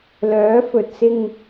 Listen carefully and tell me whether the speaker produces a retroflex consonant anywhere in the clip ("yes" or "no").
no